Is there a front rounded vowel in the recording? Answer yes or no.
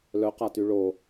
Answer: yes